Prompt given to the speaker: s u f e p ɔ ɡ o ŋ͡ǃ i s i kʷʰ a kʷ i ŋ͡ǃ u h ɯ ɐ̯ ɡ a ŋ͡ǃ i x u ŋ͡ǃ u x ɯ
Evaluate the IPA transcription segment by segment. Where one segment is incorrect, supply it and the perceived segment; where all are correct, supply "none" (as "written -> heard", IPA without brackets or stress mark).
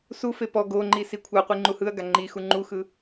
kʷ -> qʷ